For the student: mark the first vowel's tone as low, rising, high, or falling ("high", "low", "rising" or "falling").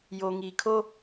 low